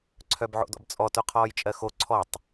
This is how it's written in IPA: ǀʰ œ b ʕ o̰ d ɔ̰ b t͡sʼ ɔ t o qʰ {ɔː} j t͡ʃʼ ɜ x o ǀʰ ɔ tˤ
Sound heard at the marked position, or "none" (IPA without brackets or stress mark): ɔː